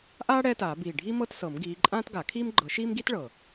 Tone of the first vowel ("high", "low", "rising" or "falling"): high